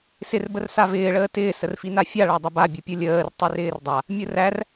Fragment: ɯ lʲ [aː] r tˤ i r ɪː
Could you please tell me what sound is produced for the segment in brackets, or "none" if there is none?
əː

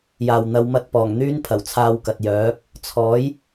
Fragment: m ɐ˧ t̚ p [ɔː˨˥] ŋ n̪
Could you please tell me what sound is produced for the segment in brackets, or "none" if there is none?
ɔː˨˩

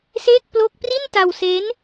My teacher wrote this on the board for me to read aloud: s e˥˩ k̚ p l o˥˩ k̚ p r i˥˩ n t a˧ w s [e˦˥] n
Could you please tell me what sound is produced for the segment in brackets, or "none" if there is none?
e˦˥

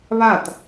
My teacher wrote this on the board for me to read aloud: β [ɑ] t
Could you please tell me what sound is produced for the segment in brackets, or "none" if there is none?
a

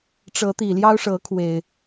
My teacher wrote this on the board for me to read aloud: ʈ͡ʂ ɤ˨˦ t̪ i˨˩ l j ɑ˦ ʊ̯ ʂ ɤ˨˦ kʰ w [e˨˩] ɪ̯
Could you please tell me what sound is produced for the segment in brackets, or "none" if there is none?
e˨˩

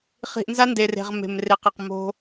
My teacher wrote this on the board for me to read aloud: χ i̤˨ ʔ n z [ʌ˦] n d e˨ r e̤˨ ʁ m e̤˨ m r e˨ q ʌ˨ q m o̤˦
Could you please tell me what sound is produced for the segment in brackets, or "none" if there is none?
a˦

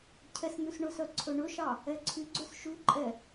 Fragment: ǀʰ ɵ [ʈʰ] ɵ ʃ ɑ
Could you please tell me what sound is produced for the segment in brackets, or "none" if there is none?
ɳ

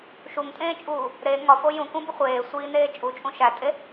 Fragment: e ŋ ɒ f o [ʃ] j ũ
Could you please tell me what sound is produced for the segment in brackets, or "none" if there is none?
none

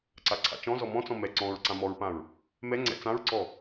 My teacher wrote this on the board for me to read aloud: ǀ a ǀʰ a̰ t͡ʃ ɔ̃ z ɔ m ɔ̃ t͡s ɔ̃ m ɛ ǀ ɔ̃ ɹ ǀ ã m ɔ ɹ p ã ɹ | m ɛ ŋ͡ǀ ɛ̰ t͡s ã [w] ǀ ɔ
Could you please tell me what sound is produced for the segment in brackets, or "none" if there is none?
ɹ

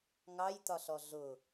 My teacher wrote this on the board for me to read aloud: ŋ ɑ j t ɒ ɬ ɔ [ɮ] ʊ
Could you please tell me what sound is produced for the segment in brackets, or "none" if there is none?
ɮ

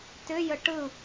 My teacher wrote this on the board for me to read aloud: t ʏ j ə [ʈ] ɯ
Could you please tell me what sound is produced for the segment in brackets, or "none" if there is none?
ʈ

